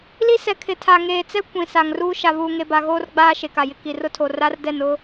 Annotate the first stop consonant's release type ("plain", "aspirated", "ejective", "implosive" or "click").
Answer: aspirated